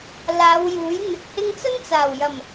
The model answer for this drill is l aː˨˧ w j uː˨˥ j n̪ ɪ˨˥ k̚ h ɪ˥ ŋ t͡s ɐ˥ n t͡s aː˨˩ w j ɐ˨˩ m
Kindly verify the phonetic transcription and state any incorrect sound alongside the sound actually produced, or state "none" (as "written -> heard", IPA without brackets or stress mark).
none